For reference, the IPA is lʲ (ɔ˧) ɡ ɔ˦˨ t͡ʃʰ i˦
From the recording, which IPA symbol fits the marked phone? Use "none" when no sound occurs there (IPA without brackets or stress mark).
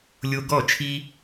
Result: o˧